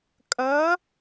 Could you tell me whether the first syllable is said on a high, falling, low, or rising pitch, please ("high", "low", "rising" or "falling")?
rising